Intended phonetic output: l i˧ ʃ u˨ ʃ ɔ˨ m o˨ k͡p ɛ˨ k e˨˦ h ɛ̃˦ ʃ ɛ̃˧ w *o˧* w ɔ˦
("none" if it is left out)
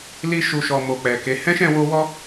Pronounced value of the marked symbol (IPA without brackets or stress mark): o˦